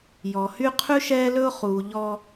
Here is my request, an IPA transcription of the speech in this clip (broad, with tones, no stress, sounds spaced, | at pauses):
j ɔ˨ h y˦ qʰ ʉ˦ ʃ ɛː˦ l ɵ˦ ʊ̯ χ uː˨ ʎ ɔ˦